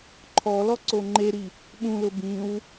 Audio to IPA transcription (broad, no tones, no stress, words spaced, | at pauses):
ǃʰɔ lɔǀoŋ͡ǃeɾi | ɓũlʊ bĩw